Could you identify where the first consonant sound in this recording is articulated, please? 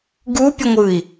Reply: velar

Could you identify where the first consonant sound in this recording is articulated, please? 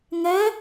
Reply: velar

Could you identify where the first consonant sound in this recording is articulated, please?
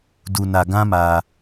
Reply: alveolar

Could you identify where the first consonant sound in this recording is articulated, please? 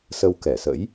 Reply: alveolar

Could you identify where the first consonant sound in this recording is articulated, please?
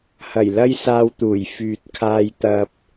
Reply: glottal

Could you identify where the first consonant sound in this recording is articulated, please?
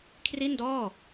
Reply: velar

